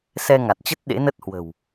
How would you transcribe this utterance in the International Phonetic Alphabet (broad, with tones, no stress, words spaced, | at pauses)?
sɛ˧ŋa˨˩t̚t͡ɕə˦˥t̚ ɗḛ˧˥nə˦˥t̚hwə̤˨˩w